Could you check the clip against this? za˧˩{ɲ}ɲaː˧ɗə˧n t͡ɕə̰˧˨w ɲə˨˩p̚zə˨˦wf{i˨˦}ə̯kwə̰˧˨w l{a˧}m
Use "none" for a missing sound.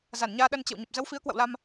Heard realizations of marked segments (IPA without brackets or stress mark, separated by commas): n, i˨˦, a˧